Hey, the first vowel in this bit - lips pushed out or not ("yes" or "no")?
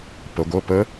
no